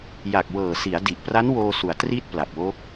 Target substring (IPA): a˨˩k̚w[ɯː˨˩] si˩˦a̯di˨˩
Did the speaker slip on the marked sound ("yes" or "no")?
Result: yes